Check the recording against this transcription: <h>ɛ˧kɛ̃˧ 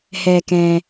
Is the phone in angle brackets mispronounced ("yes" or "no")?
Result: no